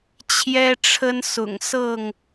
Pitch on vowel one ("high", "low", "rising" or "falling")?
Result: high